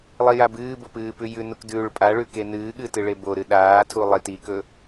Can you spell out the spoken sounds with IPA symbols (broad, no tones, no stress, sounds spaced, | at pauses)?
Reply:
lˠ i j a b ɨː b o p ɨː p ʉ j ʉ n u k d ʉː ɭ pʼ a ɭ ʉ k e n ɨː ɠ ɨ t ɨ ɭ e b o ɾ ɨ ɗ aː tʰ u lˠ i t i k ɵ